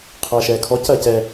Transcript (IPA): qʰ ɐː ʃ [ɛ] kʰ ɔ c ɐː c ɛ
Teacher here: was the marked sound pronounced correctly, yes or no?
no